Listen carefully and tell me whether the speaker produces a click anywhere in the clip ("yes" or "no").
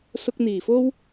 no